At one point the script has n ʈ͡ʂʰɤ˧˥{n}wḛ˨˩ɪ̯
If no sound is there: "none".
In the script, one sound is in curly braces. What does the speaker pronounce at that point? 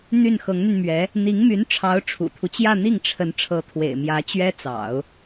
t̪ʰ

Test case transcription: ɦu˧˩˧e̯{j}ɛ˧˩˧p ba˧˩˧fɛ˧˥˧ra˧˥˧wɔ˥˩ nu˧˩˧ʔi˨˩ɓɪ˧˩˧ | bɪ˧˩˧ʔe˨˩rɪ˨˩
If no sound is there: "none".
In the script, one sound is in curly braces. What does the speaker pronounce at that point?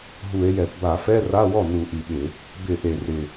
j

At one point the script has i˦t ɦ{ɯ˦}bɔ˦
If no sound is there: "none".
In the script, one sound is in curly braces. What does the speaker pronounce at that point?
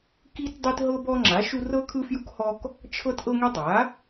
ɤ˦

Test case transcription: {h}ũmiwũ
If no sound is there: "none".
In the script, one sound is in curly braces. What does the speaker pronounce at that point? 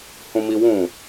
h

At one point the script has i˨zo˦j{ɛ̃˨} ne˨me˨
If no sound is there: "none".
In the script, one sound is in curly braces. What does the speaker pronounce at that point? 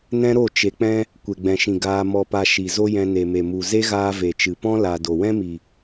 ɛ̃˧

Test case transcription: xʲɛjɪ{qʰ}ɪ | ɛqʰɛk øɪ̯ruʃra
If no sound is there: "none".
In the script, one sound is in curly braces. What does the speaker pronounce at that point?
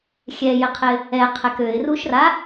qʰ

